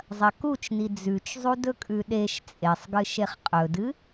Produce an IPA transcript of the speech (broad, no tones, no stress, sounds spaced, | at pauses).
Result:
zˤ ɐ k u t͡ʃ n i d͡z ʉ t͡ʃ zˤ u d ɵ kʼ ʉ ɗ e ʃ t͡sʼ e sˤ ɡ ɨ ʃ e χ qʼ ɵ d ɨ